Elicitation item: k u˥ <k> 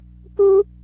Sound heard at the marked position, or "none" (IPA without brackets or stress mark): none